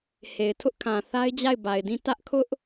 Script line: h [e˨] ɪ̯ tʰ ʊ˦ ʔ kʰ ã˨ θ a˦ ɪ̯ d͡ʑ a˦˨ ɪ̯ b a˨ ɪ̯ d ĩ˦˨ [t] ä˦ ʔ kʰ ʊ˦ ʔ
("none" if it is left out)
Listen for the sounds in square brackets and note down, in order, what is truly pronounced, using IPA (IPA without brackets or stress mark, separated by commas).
e˨, t